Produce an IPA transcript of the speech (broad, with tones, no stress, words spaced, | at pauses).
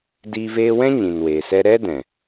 diː˧veː˧wɛ̃˦ ɲĩ˨nweː˨sɛ˦ ɾɛ˦dɛ̃˨